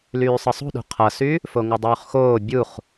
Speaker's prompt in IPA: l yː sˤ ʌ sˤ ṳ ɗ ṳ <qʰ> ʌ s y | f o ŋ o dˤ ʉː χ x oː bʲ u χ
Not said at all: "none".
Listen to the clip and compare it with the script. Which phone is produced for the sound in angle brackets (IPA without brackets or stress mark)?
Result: qʰ